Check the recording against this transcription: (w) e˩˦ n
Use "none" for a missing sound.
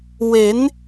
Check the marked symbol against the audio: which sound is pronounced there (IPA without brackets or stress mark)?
w